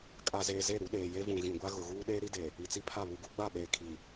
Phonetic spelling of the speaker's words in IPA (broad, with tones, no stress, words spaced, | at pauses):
kʼa˨zeː˨ ze˦˨ɾu˨˦ɗeː˨ je˦vũ˨ɣĩ˨ɡʷa˦ ɣʊ˨ɣuː˦ ɗeː˦ɾi˦de˨ | i˨t͡si˦pʰa˦˨ βu˨ɡu˨˦ ɡ͡ba˦˨ɓeː˨ kʰi˨